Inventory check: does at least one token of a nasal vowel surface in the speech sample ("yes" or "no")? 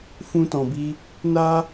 yes